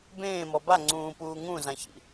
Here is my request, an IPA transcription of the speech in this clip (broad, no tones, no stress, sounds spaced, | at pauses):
b ẽː m ɔ b a ŋ͡ǀ ũː p uː ŋ ũ z ã ç ḭ